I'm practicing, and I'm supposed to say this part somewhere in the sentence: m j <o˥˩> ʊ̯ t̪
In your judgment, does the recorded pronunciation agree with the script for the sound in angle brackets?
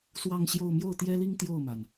yes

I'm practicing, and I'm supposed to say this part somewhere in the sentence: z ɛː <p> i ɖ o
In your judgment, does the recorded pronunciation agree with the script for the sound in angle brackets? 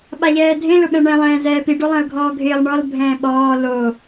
yes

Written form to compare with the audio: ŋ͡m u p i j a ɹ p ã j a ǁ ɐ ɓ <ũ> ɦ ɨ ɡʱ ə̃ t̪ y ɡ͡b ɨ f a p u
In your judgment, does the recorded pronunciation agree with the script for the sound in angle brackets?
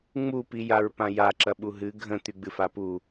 no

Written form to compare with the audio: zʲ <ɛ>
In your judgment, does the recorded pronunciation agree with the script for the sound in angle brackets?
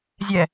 yes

